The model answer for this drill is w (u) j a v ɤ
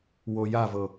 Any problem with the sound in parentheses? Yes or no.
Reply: yes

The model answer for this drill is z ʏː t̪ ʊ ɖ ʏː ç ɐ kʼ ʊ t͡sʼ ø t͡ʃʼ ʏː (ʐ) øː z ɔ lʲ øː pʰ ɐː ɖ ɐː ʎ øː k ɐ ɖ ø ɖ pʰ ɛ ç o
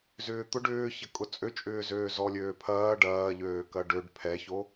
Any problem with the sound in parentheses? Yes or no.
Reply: yes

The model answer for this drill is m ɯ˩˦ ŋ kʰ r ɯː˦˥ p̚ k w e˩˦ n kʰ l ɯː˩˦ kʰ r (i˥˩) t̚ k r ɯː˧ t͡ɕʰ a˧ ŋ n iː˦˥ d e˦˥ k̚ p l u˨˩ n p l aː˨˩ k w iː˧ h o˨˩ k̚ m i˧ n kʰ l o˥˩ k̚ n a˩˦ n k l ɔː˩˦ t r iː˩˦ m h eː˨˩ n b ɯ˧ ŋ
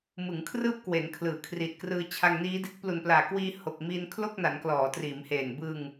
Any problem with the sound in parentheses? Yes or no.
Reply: yes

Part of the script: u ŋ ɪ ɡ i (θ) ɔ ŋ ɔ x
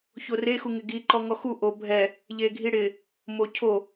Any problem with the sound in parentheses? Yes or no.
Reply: yes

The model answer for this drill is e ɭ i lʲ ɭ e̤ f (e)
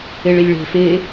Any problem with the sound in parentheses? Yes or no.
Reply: no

